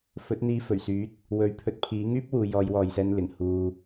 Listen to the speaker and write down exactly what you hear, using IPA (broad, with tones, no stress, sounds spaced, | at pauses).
f ɵ˨˥ t̚ n̪ iː˧ f ɵ˨˩ ɥ s yː˨˥ t̚ | w ɵ˨˥ ɥ pʰ ɵ˨˥ t̚ pʰ iː˨˥ ŋ yː˥ p̚ w uː˨ j ɔː˨˧ j w ɔː˨ j s ɛː˧ n l ɪ˨˩ ŋ h uː˨